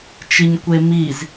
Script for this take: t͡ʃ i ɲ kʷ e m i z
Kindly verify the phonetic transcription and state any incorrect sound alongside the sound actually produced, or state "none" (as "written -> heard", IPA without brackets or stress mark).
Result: none